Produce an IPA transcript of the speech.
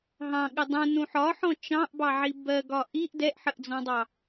ɦ ɑ̃ ɠ ɪ dˤ ũ n ũ ħ ɒ ħ ɔ̃ t͡ʃ ɑ̃ ʔ b ɑ ʕ i b ɜ ɡ ɒ ʔ i ʔ d ɛ ʔ ħ ə ʔ d͡z ɔ̃ dˤ ɑ

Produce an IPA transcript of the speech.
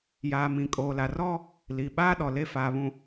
j aː˨ m ĩ˨ kʼ oː˨ l a˨ r ɔ˦ | l i˨ ɓ aː˦ ɗ ɔ˨ l e˦ f aː˨ β ũ˨

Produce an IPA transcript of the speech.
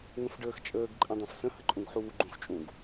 ŋ ə̃ f ɖ əː x t͡ʃʼ əː ɡ ǃʼ ɛ̃ dˤ ɛ̃ f s ə̃ h ə ǃʼ ũ ɡ ħ uː ɡ͡ǃ ũ x t͡ʃʼ ũ ɡ

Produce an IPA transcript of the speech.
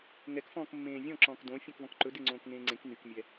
ŋ ɛ k f ɔ̃ː k mː ẽː vʲ ɔ̃ ǁ ɔ̃ː k d õ fʲ õ k v ɔ̃ k ǃ ɵ d e ŋ͡ǀ õː k ŋ ẽː ŋ͡ǀ ẽ k n y k mʲ ɛ

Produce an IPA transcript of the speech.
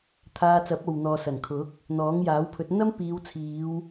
t̪ʰ aː˧ t͡s ɐ˨˥ p̚ o˨ w n̪ ɔː˨ s ɐ˨˩ n kʰ ʊ˨˥ k̚ | n̪ ɔː˨˥ ŋ j aː˨˥ w pʰ ɵ˨˥ t̚ n̪ ɐ˥ m p iː˨˧ w t͡sʰ iː˨˧ w

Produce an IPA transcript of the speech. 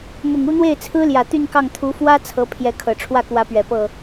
m ʊ˨˩ ŋ u˥˧ n̪ w e˥˩ ɪ̯ t͡sʰ ɹ̩˥ l j ä˨˩ t̪ y˥˧ n k ɑ˥˩ ŋ t̪ʰ u˧˥ f w ä˥ t͡sʰ ɤ˧˥ pʰ j ɛ˧˥ kʰ ɤ˨˩ ʈ͡ʂʰ w ä˥˩ k w ä˧˥ p ɥ ɛ˨˩ p ɤ˥˩

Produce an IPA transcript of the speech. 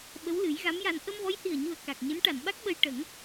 ɓ ə˧˥ w l ɨ˨˩˦ j ɣ a˧˥ m j a˧ n ʔ ə˧ m v ɔ˧˥ j h i˨˩ ə̯ ɲ u˨˩ ə̯ k a˨˩ k̚ ɲ ɨ˧˥ n ʈ a˨˩˨ n ɓ a˦˥ k̚ ɓ ə˧ j ʈ ə˨˩˦ ŋ

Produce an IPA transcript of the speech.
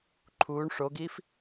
ǃʰ uː ɳ ʂ o ɡ iː f

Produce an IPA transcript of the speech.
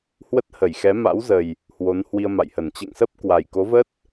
h w ə˦˥ t̚ h ə˧˩ j x ɛ˨˦ m a̰˧˥ w z ə˨˩ j | h w o˨˦ n h w i˧ ə̯ m a̰˧˨ j h ə˧˩ n t͡ɕ ɛ̰˧˨ ŋ s ə˦˥ p̚ k w a˨˩ j k o˨˦ v ə˦˥ t̚

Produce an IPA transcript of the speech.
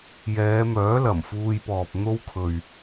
j ɛː˨˧ m œː˨˥ l ɐ˨˩ m f uː˧ j p ɔː˨ p̚ n̪ o˥ w kʰ ɵ˨ ɥ

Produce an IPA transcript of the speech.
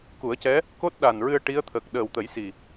k u˨˩˦ ə̯ c ɛ˧˥ | k o˦˥ t̚ ɗ a˨˩ n ɹ ɨ˧ ə̯ ʈ i˧˥ ə̯ t̪ʰ əː˨˩ k̚ ɗ əː˨˩ w t̪ ə˨˩˦ j s i˨˩

